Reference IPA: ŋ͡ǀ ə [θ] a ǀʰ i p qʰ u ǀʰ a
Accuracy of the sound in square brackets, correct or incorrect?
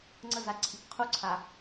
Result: incorrect